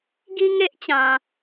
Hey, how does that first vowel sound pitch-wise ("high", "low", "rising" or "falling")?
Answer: high